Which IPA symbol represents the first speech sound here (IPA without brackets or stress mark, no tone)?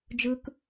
d͡ʒ